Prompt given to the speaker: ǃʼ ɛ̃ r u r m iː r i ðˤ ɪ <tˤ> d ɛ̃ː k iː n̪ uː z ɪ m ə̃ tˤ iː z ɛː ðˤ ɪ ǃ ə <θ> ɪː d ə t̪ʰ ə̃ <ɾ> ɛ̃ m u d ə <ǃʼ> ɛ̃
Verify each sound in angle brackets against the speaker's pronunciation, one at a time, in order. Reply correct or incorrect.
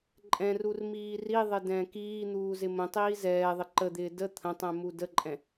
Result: incorrect, incorrect, incorrect, correct

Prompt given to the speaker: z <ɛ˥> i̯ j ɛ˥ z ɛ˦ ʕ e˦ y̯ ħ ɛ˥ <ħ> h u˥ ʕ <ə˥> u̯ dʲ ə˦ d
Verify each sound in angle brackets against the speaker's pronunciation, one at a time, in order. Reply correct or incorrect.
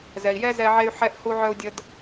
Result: incorrect, incorrect, incorrect

